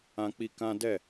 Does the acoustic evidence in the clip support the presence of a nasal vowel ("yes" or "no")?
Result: yes